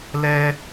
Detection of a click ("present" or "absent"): absent